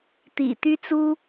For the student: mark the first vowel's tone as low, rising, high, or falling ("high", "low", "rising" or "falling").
low